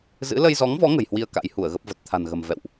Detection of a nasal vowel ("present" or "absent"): absent